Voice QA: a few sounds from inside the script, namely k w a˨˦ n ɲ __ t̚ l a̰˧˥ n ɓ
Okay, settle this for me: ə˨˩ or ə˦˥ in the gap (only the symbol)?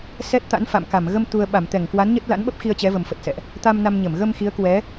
ə˦˥